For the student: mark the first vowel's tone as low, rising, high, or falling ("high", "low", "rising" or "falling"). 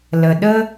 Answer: low